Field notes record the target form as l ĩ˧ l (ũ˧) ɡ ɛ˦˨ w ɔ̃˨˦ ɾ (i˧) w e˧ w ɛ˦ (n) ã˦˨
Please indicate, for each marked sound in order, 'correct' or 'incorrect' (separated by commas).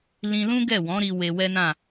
incorrect, correct, correct